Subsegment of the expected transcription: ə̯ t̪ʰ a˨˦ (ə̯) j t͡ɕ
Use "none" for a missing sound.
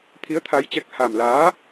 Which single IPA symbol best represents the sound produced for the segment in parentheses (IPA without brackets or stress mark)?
none